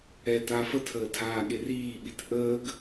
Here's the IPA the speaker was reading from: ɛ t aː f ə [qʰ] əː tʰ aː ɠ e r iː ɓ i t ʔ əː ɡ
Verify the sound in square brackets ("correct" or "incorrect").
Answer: incorrect